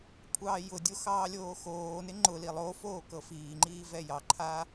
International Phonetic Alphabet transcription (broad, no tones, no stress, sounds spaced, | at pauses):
kʷʰ ɑː j ʊ dʲ o x ɑː lʲ oː x oː n ɪ ŋ͡ǃ ʊ l i lˠ o f oː k ɤ f iː ŋ͡ǃ iː v ɛ j ɑ ǃʰ aː